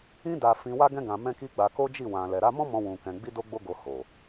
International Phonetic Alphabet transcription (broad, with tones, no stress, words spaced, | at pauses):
ĩ˦ da˧fĩ˧wa˦ɡɛ̃˦ ɡã˧mɛ̃˦ki˦ ɡ͡ba˧ko˦ d͡ʒi˦˨ wã˨lɛ˨ɾa˧ mɔ̃˦mɔ̃˧ wũ˧kɛ̃˧ ɡ͡bi˦do˦ ɡ͡bo˦ɡo˧ ho˨